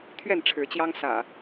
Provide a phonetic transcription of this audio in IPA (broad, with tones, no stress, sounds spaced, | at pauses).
t̪ʰ ɥ ɛ˥˨ n ʈ͡ʂʰ ɻ̩˨˦ t͡ɕ j ɑ˦ ŋ s ä̰˨˩